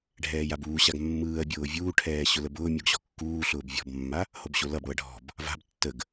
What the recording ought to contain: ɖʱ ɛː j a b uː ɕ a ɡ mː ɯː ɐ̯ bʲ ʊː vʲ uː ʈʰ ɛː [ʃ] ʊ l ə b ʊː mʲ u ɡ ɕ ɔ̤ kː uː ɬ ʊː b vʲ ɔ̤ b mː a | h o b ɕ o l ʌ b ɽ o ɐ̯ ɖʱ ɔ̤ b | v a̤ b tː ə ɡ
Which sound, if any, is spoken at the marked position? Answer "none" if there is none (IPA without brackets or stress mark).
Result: ɕ